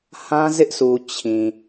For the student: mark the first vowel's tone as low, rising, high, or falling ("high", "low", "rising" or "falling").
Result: high